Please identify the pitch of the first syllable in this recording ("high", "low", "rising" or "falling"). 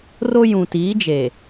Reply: high